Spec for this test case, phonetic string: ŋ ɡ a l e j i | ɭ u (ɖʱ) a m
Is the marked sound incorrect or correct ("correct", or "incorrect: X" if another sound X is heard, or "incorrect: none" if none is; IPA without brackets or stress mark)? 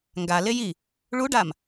incorrect: ɖ